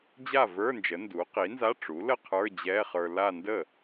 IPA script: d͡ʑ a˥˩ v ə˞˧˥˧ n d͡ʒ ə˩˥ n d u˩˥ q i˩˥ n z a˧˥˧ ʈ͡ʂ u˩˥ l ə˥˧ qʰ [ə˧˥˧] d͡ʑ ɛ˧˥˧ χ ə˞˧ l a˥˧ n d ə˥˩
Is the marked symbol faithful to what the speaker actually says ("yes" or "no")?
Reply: no